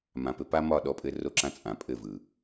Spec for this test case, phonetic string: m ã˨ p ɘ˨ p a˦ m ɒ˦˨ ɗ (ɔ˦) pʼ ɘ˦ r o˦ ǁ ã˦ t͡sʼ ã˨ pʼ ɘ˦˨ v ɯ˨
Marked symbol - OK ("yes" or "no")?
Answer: yes